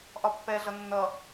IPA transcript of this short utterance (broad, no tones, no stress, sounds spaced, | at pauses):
ʔ ɒ pː ɛ ɮ ʌ nː ʌ